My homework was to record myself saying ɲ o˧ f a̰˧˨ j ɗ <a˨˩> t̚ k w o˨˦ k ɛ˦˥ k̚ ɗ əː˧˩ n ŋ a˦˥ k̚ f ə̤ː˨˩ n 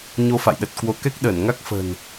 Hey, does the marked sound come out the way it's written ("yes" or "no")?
no